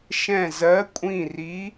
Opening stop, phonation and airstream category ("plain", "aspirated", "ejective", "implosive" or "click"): ejective